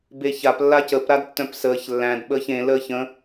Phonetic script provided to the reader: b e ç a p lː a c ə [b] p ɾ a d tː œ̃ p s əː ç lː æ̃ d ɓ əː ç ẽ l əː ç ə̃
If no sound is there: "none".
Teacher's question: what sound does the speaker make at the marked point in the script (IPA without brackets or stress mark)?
none